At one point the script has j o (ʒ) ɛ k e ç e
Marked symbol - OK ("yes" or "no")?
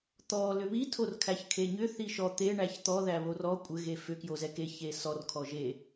no